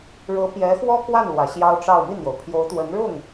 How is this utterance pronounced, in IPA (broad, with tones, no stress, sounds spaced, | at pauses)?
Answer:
ɻ ɤ˧˥ p j ɛ˧˥ x w ɔ˥ k w a˥˩ n l w ä˨˩ ɕ j ɑ˥ ʊ̯ ʈ͡ʂ ɑ˥˧ ʊ̯ m i˥˩ n̪ j o˩ ʊ̯ pʰ j o˧˥ ʊ̯ t̪ w ə˧˥ n ɻ ʊ˥˩ ŋ